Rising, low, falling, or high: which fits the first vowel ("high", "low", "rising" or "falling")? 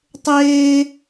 high